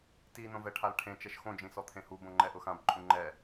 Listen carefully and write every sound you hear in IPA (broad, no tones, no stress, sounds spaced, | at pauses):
t i n õ v ɛ ʈʰ a l ʈʰ ẽ t͡ʃ ɛ ʃ x õ d͡ʒ ĩ s ɔ t̪ʰ ẽ h u b õ ŋ͡ǃ ɛ ʔ ʊ x ã b ǃʼ ũ ŋ͡ǃ ɛ